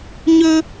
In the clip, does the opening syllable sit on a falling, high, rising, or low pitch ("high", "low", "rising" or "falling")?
high